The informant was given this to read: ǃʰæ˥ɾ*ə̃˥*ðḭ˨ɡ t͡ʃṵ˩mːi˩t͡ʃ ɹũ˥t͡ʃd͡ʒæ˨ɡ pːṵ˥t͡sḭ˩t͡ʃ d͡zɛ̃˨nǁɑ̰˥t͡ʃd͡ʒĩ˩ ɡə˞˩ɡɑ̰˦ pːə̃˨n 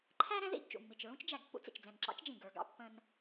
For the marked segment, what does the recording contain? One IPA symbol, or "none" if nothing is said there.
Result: ɛ̃˥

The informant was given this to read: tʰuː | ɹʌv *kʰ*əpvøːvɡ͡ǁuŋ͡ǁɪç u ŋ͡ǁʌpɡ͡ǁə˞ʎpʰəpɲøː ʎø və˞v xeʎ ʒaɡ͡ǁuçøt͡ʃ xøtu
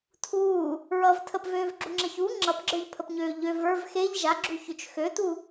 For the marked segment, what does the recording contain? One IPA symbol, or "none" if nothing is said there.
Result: tʰ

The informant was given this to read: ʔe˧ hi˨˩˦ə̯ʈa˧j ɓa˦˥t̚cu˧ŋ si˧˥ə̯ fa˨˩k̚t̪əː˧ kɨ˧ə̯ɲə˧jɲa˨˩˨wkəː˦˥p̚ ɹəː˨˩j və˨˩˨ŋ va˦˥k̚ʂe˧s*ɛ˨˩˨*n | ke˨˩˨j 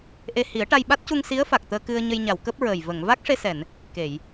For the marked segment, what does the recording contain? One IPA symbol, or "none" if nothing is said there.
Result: ɛ˨˩˨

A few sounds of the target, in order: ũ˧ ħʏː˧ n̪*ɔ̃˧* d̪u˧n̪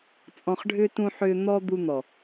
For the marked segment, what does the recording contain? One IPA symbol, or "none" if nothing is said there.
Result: ɔ˧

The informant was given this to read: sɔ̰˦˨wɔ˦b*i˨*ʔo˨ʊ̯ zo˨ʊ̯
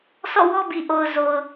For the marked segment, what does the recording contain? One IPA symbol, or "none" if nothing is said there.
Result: i˨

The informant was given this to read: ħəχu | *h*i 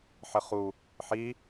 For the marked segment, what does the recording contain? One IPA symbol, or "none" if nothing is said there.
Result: ħ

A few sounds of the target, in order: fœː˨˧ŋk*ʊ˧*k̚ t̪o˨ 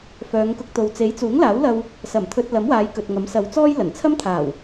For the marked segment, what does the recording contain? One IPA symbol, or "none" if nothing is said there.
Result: ʊ˧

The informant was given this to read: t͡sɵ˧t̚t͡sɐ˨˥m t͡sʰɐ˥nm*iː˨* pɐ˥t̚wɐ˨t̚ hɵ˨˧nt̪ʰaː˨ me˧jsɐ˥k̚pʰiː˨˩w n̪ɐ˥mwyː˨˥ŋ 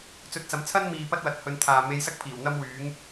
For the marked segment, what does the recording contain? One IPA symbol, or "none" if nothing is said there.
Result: iː˨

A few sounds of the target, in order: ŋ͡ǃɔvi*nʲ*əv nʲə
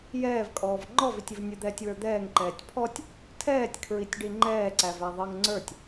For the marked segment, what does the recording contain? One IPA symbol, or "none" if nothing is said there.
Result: tʲ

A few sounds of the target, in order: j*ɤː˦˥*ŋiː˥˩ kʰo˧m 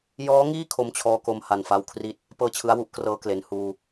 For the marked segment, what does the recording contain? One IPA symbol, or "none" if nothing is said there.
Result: ɔː˦˥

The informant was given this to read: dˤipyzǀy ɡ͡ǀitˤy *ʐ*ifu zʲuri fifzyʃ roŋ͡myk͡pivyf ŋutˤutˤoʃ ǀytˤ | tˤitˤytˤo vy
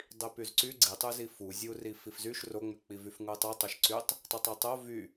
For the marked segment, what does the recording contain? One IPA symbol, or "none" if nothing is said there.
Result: z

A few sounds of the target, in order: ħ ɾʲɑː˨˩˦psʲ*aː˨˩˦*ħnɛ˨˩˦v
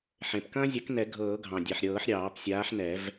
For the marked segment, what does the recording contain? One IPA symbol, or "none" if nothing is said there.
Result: aː˨˥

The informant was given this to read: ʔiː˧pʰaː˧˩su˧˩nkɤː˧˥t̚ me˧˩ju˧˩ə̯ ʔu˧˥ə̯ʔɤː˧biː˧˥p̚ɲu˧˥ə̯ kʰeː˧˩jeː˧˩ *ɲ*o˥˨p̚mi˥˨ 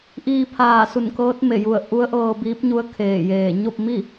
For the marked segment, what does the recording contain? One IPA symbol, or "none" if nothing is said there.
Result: ɲ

